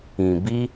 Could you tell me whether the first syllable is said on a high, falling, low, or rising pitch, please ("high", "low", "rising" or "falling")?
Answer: low